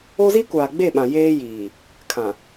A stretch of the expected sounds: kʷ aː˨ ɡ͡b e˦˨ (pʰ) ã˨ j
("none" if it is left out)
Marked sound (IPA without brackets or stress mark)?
ɓ